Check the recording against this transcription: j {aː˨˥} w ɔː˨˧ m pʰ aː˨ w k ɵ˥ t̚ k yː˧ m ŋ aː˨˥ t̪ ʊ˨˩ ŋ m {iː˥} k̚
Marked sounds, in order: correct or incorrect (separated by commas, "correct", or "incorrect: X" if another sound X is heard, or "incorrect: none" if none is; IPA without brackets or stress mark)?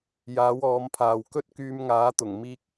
correct, correct